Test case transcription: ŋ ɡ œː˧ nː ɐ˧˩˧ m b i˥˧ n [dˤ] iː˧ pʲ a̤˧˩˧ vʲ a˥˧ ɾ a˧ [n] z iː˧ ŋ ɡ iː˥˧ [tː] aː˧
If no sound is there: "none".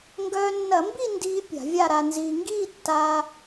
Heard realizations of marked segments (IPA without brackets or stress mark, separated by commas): d, n, tː